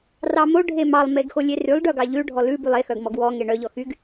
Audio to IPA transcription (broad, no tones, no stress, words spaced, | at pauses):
rɑmo ɖʱemɑlˠ meɡxolʲerylˠ ɖœɡɑʎʉ ɖʱɔlʉ bylˠe xœɡmɔɡwɔ ŋeɳœ ʎɔxyɡ